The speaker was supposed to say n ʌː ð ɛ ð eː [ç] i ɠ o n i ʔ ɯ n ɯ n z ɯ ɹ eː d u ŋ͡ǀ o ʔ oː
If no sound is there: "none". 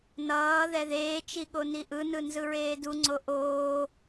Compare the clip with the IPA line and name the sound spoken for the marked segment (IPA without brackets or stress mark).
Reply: t͡ʃ